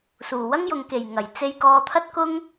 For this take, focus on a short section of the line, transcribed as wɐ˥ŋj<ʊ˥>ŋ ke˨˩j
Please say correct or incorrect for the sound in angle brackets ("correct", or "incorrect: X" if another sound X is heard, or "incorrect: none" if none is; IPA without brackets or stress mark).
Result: incorrect: ʊ˨